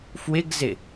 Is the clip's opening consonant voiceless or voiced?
voiceless